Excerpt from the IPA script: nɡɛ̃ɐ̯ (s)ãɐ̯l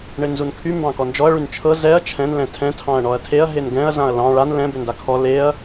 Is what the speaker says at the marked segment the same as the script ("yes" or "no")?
no